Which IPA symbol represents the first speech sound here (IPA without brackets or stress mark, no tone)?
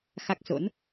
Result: x